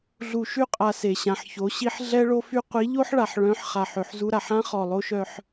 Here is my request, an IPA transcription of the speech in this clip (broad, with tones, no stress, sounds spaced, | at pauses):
ɮ u˨ ʃ y˦˨ qʼ a˨ s e˨ ɕ ã˨ ħ ç o˨˦ ɕ i˦ ħ ɮ ɛ˦ ɭ o˦ f y˦ qʷ i˨˦ ʎ o˦ ħ ɭ a˨ ħ ɭ œ̃˨˦ ħ χ a˨ ħ ø˨ ħ z u˦ ɾ a˨ ħ ã˦ χ ɔ˨ lˠ o˦ ʃ œ˦ ħ